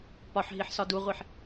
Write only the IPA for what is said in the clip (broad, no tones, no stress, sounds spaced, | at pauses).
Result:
p ɒ ħ ɦ i ħ s ɒ d u ʁʷ i ħ